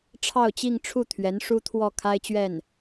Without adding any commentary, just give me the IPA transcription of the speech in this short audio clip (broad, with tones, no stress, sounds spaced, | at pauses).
ʈ͡ʂʰ ɑ˥˧ ʊ̯ t͡ɕ i˥˧ ŋ ʈ͡ʂʰ u˥˩ t̪ʰ ɥ ɛ˧˥ n ʂ u˥ t̪ʰ w ɔ˥˩ kʰ a˥ ɪ̯ t͡ɕ ɥ ɛ˥˩ n